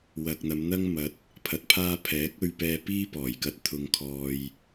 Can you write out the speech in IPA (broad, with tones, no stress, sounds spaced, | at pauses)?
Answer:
w ɐ˨ k̚ n̪ ɐ˨˧ m n̪ ɐ˥ ŋ m ɐ˨ t̚ | pʰ ɐ˨ t̚ pʰ aː˧ pʰ ɛː˨˥ k̚ ɵ˧ ɥ p ɛː˧ p iː˥ p ɔː˨˩ j k ɐ˧ t̚ t̪ʰ ʊ˨ ŋ kʰ ɔː˨ j